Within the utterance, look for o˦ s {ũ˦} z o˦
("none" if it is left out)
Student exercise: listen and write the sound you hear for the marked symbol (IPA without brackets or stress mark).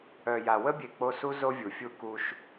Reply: u˦